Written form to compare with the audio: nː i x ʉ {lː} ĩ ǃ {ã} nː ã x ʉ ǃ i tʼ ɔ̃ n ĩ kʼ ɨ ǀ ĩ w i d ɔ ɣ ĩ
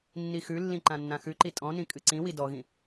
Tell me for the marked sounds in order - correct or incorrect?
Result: correct, correct

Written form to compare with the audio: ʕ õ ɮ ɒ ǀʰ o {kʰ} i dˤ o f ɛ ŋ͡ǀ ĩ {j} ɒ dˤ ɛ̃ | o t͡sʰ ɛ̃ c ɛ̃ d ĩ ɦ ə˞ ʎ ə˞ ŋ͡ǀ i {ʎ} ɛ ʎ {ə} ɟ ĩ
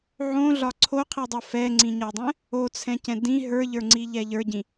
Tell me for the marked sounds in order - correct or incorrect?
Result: incorrect, incorrect, correct, incorrect

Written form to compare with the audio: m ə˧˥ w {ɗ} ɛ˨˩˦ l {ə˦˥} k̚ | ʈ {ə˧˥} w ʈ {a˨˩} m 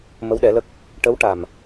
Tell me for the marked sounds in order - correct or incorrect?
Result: correct, correct, correct, correct

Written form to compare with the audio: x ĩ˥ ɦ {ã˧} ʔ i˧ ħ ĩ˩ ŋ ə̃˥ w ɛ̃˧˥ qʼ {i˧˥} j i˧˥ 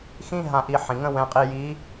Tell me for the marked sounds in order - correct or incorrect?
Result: correct, incorrect

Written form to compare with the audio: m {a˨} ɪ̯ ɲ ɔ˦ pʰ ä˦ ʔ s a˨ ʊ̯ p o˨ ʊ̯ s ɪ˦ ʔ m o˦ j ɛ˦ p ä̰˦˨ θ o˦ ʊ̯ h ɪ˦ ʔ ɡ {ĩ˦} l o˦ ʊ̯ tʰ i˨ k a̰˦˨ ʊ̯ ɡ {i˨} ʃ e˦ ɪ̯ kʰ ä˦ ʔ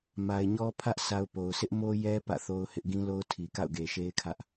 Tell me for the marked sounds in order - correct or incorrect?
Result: correct, correct, incorrect

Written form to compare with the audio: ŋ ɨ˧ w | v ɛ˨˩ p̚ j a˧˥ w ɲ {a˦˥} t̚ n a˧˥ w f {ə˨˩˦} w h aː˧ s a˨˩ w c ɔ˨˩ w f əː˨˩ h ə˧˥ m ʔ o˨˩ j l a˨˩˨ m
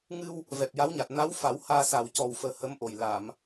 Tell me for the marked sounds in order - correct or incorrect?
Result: incorrect, incorrect

